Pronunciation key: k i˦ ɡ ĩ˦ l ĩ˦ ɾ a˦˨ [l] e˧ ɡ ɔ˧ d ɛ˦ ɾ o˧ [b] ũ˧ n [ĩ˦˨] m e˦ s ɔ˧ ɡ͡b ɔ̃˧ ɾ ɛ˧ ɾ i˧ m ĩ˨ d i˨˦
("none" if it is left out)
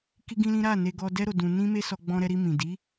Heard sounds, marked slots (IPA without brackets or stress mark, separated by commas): n, d, ĩ˦